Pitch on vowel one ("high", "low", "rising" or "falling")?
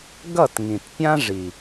falling